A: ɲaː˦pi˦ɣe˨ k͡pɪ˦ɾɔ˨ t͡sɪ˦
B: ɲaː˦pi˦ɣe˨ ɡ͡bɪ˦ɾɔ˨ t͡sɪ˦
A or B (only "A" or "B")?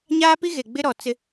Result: B